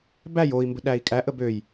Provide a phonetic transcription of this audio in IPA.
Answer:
b æ j o i̯ m b ə̤ ɗ æ i̯ kʼ æ ʔ ə b ø j

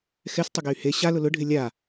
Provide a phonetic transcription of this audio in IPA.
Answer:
x ɛ s tˤ ʊ ɡ e y̯ h e ɕ a l ʊ l ʊ ɖʱ ɪ lʲ a

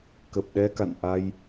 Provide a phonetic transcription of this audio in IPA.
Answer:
k ə˨˩ p̚ ɗ ɛ˧ k a̰˧˨ n ʔ a˧ j

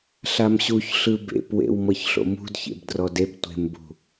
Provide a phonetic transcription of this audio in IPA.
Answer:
ɬ a m ɕ u ç ɬ ɯ b ḛ p w ḛ w m ɤ ç ɬ o̰ m ṳ d ç ḛ b d r ɔ d e b tʷ e̤ m b ṳ

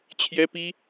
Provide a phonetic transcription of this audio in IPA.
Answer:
t͡ɕʰ j ɛ˥ p i˥

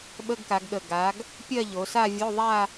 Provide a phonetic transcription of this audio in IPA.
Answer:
ɓ ə˧˥˧ ɡ k a˩˧ ɡ ɠ ə˨˩ ɡ a˩˧ ɡ | pʲ ɜ˥˧ ʎ o˩˧ s a˥˧ vʲ o˧˥˧ ðˤ a˥˧

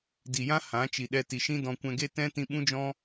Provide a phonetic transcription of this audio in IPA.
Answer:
d i˨ j ã˦ h ã˨˦ t͡ʃ i˨ ɗ ɛ˧ t i˨ ʃ ĩ˦ d ɔ̃˧ kʷ ɛ̃˧ ɡ e˦ t ɛ̃˦ t ĩ˧ ɓ ũ˦ d͡ʒ ɔ̃˦

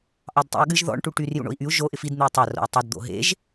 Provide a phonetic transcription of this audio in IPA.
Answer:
ʔ ɑ d tˤ ḭ u̯ ɠ ɨ ʒ ð ɔ̰ ɳ ʈ u ʈ y r j ṵ ɳ o̰ i̯ ʔ y u̯ ʒ o ʔ ɪ f i d n̪ ɨ u̯ tˤ a r o̰ u̯ tˤ o d d̪ o̰ ɦ ḛ ʒ

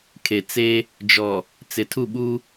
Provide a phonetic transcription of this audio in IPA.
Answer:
kʰ e˨ t͡s e˦ | d͡ʒ ɔ˨ | t͡s ɪ˨ tʰ u˦˨ ɓ u˦

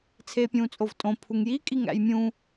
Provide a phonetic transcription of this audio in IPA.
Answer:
t͡sʰ eː pʲ ũː t͡sʼ o v tʼ õ pʰ u ŋ j i kʼ i ŋ æ̰ j mʲ ũ

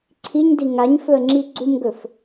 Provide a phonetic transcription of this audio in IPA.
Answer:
ǀʰ i ɲ d i ŋ a ɲ f ɵ ə̯ ŋ͡ǁ i ɡ͡ǀ u m ɡ ɵ f

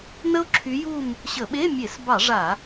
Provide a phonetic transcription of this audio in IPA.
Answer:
n ə˥ o̯ ǁʰ y˧˥ j u˥˧ m | ɕ ə˧˩˧ ɓ e˧˥˧ mʲ e˧˩˧ s b ɑ˧˩˧ ʐ a˧˩˧

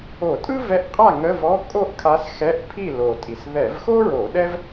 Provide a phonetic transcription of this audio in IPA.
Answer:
o˧˩˧ tʼ ɯ˥ v ɛ˧˥ ʔ qʼ a˥˨ ŋ ə˧˥˧ v ɔ˧˥˧ kʼ o˥˨ ʔ kʰ a˧˥ s x ɛ˧˥˧ ʔ pʰ i˥˨ l o˨˩ tʼ i˨˩ s ð ɛ˧˩˧ v x o˥ ɹ o˧˩˧ ɗ ɛ˥ v

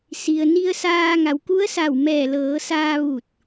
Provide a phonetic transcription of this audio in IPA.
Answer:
s i˩ ə̯ n i˧ ə̯ s aː˧ ŋ a˩˧ w k u˧˥ ə̯ s a˧˩ w m ɛː˧˩ l ɤː˩˧ s aː˧ ʋ u˧˩ t̚

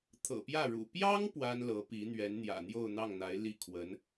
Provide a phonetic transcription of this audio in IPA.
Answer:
t̪ʰ ɤ̰˨˩ p j ä˥˩ ɻ ṵ˨˩ p j ɑ˥ ŋ p w a˥ n l ɤ˧˥ p i˧˥ n̪ ɥ ɛ˧˥ n n̪ j ä̰˨˩ n̪ j o˥˧ ʊ̯ n̪ ɑ˥˩ ŋ n̪ a˧˥ ɪ̯ l i˥˩ kʰ w ə˧˥ n

